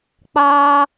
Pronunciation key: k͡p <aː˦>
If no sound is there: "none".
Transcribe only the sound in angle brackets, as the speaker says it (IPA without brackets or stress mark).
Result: aː˦